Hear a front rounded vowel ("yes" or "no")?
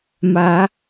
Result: no